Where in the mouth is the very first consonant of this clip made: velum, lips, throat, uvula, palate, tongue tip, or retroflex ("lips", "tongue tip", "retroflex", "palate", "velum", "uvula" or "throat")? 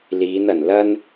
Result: tongue tip